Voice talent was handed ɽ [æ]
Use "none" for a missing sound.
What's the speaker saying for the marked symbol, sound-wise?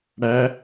æ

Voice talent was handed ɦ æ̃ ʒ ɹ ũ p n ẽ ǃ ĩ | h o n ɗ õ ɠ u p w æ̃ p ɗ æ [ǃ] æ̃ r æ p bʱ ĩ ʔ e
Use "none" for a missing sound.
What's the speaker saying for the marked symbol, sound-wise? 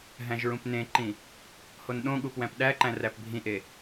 ǃ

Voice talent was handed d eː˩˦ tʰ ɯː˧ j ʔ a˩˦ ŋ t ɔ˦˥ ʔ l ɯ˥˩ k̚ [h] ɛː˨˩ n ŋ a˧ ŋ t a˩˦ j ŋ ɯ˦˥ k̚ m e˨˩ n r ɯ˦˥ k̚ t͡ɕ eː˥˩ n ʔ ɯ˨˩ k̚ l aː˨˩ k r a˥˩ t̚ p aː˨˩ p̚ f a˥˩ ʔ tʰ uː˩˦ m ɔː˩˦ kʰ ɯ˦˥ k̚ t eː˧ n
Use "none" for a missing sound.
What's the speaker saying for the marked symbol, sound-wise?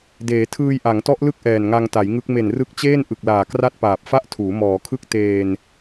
ʔ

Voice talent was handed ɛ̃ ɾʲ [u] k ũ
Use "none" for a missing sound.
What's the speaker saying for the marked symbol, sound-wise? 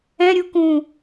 u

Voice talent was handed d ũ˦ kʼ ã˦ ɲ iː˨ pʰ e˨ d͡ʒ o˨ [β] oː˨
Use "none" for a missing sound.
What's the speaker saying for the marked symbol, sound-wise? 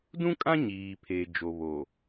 β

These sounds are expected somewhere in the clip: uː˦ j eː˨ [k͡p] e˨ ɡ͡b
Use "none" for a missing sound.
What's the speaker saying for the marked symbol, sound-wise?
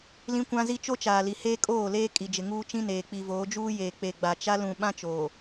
k͡p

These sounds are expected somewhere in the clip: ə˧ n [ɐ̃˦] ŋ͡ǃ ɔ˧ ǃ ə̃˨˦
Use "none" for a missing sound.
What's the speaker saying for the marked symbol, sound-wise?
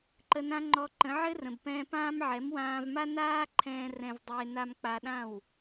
ã˦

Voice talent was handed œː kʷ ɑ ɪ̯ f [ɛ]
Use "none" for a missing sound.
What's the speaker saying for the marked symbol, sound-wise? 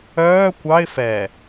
ɛ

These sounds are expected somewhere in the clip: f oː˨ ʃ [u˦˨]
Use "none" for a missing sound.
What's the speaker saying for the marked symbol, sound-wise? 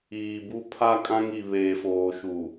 u˨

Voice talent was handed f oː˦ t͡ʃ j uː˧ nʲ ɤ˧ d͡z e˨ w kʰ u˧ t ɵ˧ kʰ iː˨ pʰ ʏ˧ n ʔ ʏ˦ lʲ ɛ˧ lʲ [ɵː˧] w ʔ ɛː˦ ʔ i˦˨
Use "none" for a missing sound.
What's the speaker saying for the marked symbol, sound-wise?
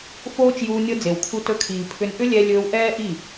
ɵː˧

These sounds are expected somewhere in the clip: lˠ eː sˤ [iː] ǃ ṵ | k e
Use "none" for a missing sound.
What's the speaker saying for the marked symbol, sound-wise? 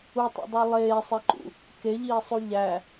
i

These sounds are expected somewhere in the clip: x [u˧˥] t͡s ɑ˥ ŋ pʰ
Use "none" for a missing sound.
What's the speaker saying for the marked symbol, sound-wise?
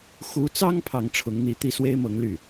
u˧˥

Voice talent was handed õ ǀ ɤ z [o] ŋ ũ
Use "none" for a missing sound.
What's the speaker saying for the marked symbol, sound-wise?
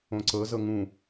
ɤ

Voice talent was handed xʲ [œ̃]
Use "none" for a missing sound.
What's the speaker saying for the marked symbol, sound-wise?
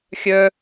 œ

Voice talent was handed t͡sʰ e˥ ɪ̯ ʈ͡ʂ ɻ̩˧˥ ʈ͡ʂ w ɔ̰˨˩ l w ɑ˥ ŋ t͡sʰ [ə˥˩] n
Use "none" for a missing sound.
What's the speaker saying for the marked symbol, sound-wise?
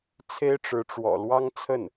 ə˥˩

